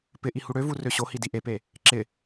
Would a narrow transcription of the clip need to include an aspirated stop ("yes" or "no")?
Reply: no